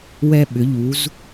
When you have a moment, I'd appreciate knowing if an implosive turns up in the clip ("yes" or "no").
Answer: yes